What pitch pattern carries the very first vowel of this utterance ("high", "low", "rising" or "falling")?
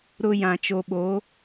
high